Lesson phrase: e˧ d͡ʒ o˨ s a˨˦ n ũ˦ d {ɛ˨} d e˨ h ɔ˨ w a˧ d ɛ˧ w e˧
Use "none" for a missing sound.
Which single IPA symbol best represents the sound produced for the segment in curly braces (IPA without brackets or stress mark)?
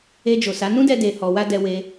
ɛ˧